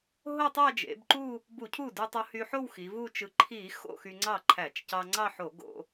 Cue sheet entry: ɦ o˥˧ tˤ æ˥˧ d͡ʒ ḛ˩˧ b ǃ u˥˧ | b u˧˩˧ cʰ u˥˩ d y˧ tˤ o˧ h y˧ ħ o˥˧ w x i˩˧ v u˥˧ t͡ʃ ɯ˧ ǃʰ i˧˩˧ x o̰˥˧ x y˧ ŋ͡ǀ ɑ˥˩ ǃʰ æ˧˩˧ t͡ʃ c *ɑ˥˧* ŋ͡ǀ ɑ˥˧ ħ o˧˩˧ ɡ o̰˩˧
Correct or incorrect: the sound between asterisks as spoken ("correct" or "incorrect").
incorrect